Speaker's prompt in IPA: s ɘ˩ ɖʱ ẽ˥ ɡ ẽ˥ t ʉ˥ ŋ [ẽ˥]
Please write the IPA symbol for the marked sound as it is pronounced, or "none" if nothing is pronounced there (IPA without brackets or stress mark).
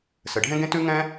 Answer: ɛ̃˥